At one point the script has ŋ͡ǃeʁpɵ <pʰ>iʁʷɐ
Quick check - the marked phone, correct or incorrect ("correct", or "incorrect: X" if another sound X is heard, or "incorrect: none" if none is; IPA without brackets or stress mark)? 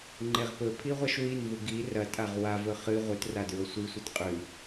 correct